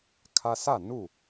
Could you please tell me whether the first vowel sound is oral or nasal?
oral